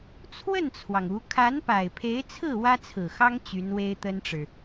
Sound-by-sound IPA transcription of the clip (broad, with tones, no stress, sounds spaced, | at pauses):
t͡sʰ w ə˥˩ n t͡sʰ w ɑ˩ ŋ u˧˥ kʰ a˧˥ n p a˨˩ ɪ̯ pʰ e˧˥ ɪ̯ t͡sʰ ɹ̩˥˩ w ä˥ t͡sʰ ɹ̩˨˩ x ɑ˥ ŋ t͡ɕ y˧˥ n w e˥ ɪ̯ t̪ ə˥ n ʈ͡ʂ ɻ̩˨